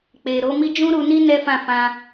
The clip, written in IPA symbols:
k͡p e˨ ɾ o˨˦ m i˦ d͡ʒ ũ˦ ɾ u˧ n i˦ n ɛ˦ f ã˦˨ f ã˧

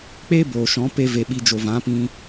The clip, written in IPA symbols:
k͡p eː˦ b oː˨ ʃ ɔ̃˨˦ p e˦ v e˧ ɓ i˧ d͡ʒ o˨ v ã˨˦ p ĩ˧

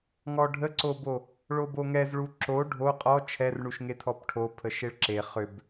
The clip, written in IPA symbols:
ŋ ɔ ɖʱ ə ǀ o b o | ɭ o b o ŋ ɛ z ɭ u ǁ o ɖʱ o qʼ ɔ t͡ʃʰ ɛ r ɳ u ʃ ŋ e tʰ ɔ p ʈʰ o pʰ ə ʃ e ɭ ǁ e χ ʏ b

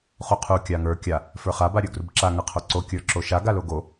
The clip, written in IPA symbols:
χ u qʰ u kʲ a ŋ ə˞ kʲ a | f ə˞ χ a b a ɾʲ ə˞ ɡ r u b ǁ a ŋ a qʰ o ǀ o kʲ ə˞ ǁ o ʃ a ɡ a l o ɡ o

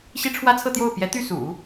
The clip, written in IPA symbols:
ɕ i˥ ʈ͡ʂʰ w ä˥ t͡sʰ ɤ˥˧ t̪ j o˥˩ ʊ̯ p j ɛ˧˥ t̪ y˥˩ s ṵ˨˩˦

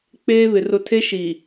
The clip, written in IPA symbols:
k͡p eː˦ β ɪ˨ r ʊ˨ tʰ e˦ ʃ i˨

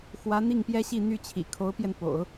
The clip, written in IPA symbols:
x w ä˧˥ n̪ i˥˩ ŋ p j ɛ˥ ɕ i˥˧ n̪ y˥˩ t͡ɕʰ ḭ˨˩ kʰ o˧˥ ʊ̯ p j ɛ˧ n p o̰˨˩˦ ʊ̯

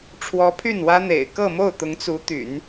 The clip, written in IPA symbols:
ʈ͡ʂʰ w ɔ˧˥ pʰ y˥˩ n w ä˥ n̪ ḛ˨˩ ɪ̯ k ɤ˥˧ m o˥˩ ʊ̯ t̪ ʊ˧˥ ŋ t͡s u˧˥ t̪ y̰˨˩˦ n

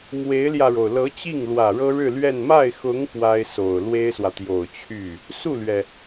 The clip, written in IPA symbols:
m w e˧˥ ɪ̯ l j ä˧ ɻ o˩ ʊ̯ l ɤ˧˥ t͡ɕ i˥˩ ŋ l w ä˨˩ ɻ ɤ˥ ɻ ɻ̩˥˧ l ɥ ɛ˥˧ n m a˥˩ ɪ̯ x ʊ˧˥ ŋ p w a˥ ɪ̯ s o˨˩ ʊ̯ l w e˥ ɪ̯ s w ä˨ t̪ j o˨˩ ʊ̯ t͡ɕʰ y˥˩ | s u˥˩ l ɥ ɛ˩

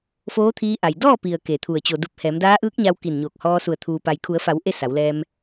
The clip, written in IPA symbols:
f oː˧˥ t̪ʰ iː˧ ʔ a˩ j d ɔː˥˨ p i˩ ə̯ k e˧˩ t̪ʰ u˧˩ ə̯ t͡ɕ o˩ d u˧˩ p̚ h ɛː˩˧ m d aː˧˥ ʔ ɯː˧˥ k̚ ɲ a˧ w k i˧˩ n ɲ oː˧˩ k̚ h ɔː˧ s u˧˩ ə̯ t̪ʰ uː˩ p a˩ j kʰ u˩˧ ə̯ f a˩˧ w ʔ e˥˨ s a˩˧ w l ɛː˧ m

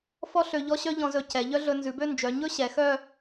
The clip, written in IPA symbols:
f ɔ˥ ɬ ø˧ ʎ ɔ˥ ɕ œ˥ ʎ ɔ̃˧ z ɵ˧ c ɛ˩˧ ʎ œ˥ ɮ ɵ˧ n z ʉ˩˧ b ø˥˧ n d͡ʒ œ˩˧ ɲ ɵ˥ ɕ ɛ˩˧ x œ˥˧

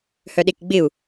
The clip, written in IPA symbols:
h œ ɗ e k ɡ͡b ɪ u̯

